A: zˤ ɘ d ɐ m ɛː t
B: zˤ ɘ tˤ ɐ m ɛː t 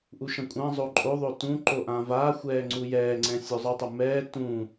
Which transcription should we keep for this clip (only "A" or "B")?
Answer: B